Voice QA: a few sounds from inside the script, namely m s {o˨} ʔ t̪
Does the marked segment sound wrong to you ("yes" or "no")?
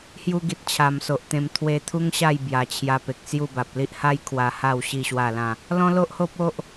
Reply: no